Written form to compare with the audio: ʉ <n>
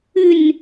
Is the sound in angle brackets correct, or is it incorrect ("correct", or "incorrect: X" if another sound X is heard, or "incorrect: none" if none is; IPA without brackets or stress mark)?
correct